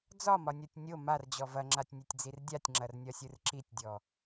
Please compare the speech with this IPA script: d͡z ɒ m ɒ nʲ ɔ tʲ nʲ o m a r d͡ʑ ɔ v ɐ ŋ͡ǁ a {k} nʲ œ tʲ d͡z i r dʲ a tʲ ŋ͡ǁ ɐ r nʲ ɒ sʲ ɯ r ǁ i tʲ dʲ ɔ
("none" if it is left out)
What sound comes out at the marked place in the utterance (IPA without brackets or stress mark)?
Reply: tʲ